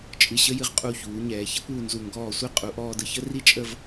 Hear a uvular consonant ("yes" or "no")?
yes